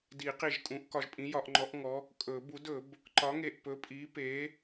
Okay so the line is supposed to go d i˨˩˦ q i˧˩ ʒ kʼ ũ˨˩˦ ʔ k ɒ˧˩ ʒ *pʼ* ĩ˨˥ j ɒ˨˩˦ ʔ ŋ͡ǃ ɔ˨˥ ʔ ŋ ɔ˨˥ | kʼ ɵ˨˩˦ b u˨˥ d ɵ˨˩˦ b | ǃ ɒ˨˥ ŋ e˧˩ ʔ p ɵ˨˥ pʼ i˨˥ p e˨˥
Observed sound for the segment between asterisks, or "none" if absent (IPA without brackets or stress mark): pʼ